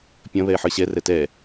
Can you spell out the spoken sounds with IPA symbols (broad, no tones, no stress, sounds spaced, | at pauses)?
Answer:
pʲ ɐ̃ β ɛ e̯ ħ ə˞ ɕ ɛ r ɛ t ɛ